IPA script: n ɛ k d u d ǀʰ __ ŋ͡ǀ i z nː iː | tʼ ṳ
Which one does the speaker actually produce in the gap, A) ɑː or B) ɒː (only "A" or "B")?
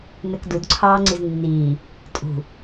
A